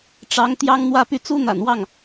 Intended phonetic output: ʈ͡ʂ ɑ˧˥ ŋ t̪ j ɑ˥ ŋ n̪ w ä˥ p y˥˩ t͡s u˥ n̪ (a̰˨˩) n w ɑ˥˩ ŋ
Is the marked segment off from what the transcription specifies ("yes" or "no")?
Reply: no